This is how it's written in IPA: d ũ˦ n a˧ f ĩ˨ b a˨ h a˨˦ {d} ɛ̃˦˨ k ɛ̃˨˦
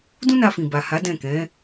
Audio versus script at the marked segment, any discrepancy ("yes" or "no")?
no